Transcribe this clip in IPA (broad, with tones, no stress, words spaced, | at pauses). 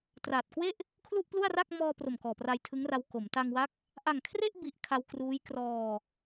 traː˨˩t̚kwe˥˩ʔ | kʰlu˥˩ʔplu˥˩a̯ra˥˩k̚ mɔː˧pro˨˩m kɔː˨˩pra˧j tʰɯ˦˥ŋra˧w ko˩˦m ta˧ŋwa˦˥k̚ | ʔa˨˩ŋkʰre˥˩ʔbi˨˩ʔ kʰa˧wkruː˦˥j krɔː˧